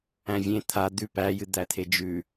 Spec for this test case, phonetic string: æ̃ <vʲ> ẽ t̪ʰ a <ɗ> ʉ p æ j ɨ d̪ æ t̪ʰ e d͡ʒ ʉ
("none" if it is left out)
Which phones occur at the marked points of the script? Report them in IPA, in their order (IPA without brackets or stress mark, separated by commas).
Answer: vʲ, d̪